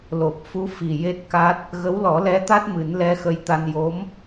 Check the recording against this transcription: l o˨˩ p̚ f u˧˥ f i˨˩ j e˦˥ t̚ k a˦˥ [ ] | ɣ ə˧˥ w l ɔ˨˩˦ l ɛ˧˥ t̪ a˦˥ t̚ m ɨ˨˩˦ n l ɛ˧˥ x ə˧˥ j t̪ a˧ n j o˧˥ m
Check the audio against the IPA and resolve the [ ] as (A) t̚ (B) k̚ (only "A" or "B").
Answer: A